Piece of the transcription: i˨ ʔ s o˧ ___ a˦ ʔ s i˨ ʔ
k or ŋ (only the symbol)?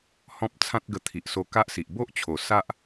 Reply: k